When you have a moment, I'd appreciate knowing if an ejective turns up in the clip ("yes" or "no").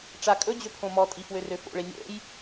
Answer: yes